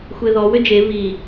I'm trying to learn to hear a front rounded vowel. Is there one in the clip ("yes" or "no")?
yes